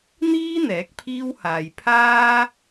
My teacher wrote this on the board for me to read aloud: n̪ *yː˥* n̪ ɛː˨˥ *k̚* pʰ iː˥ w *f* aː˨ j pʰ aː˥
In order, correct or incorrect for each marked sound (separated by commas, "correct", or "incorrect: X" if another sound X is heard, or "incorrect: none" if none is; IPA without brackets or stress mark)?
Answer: incorrect: iː˥, correct, incorrect: h